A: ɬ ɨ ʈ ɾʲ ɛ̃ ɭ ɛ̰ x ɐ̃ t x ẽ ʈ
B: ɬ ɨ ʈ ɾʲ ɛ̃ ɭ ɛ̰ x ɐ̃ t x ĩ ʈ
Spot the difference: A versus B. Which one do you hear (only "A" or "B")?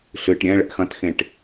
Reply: A